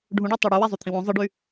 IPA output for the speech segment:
ɖʱ ũ ɖ u tˤ ɑ ɽ u w æ zˤ u t̪ʰ ĩ w õ zˤ ɯ ɖ y

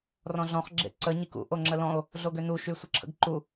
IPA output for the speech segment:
r ɔ̃ ɮ ɔ̃ χ ɡ͡ǁ ḛ ǀ ə ɲ i k ṵ ʔ o ŋ͡ǁ ə l ɔ̃ o̯ | ɮ o ɡ ø n u ʃ y sʷ ə ǁʰ ə̰ ɡ ǃ u

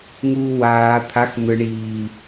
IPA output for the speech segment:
ŋ uː w aː t̪ʰ a x n̪ ɯ ɳ iː

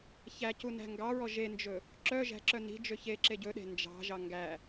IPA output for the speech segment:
ç æ c u n æ̤ ŋ ɡ ɑ ɹ ɔ ʒ e n d͡ʒ ɵ | ǁ œ ʒ æ̤ ǁ œ n i̤ d͡ʒ ø ç e ǁ e ɟ ɵ ɗ e̤ n d͡ʒ ɑ̤ ʒ ɑ ŋ ɡ æ

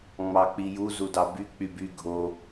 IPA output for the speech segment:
ŋ͡m ɑ k͡p i j u z u d ɑ b y k͡p y b y ɡʱ o

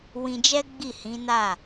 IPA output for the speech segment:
w ĩ˧ d͡ʒ ɛ˦ ɡ͡b i˦˨ h ĩ˨˦ n a˦˨

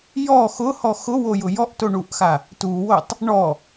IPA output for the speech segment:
j ɔ x ʊ h ɔ x ʊ w o j ʊ j ɔ ʔ t o ɳ u ʔ x a | t u w o tˤ | ɳ ɔ

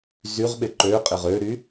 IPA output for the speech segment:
z y ʁ ɓ ɪ ǃ ø qʼ ɪ ʁ ø ɾ y

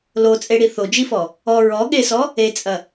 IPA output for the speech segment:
l o t͡sʼ e ɽ i θ o d͡ʒ i f ɔ | ɔ ɹ ɔ ɠ e s ɔ | e t͡sʼ ɐ

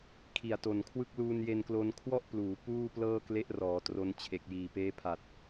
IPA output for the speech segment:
kʰ i˨˩ a̯ t o˨˩ n kʰ w ɯ˥˩ k̚ l uː˧ n j e˧ n k l o˧ n kʰ w ɔ˥˩ ʔ p l uː˩˦ p uː˥˩ p l ɤː˥˩ k l e˦˥ ʔ r ɔː˩˦ t r o˧ n t͡ɕʰ e˨˩ k̚ j iː˨˩ p eː˦˥ pʰ a˨˩ t̚

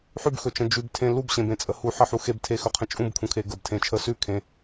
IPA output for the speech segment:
ħ ʉ b x ɵ t͡ʃ ə̃ d͡ʒ ʉ b tʰ ẽ l u b ɕ ẽ b ẽ t͡sʼ ə h u ħ ə ħ u x e b tʰ e x ɵ qʰ ə̃ t͡ʃʼ ũ b kʰ ũ kʰ e ɡ ə b tʰ ẽ t͡ʃʰ ə s ʉ kʰ ẽ

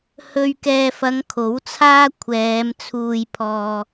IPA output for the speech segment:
h ɵ˨ ɥ k ɛː˨ f ɐ˨˧ ŋ kʰ o˨˥ w t͡sʰ aː˥ kʷʰ ɛː˨˧ m t͡sʰ uː˧ j pʰ ɔː˧

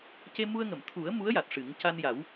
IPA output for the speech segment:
c e˧ m u˧ ə̯ ŋ ə˨˩˨ m t̪ʰ u˨˩˦ ə̯ m u˧˥ ə̯ j a˨˩ t̚ ʂ ɨ˨˩˦ ŋ c a˧ n j a˨˩˦ w

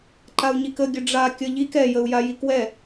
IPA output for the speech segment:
ǃ a u̯ ɲ i k ə ɡʲ ə ɖ͡ʐ a kʲ ʌ ʎ i k ɛ j ə u̯ j a j i k w ɛ

